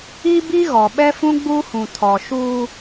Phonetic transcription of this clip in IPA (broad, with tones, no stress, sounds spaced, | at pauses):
i˦ b i˦ ɣ ɔ˨ ɓ ɛ˦ f ũ˦ ɡ͡b uː˦ h ũ˨ tʰ ɔ˨ ʃ uː˦